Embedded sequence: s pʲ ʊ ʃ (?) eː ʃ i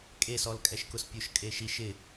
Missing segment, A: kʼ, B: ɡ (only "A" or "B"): A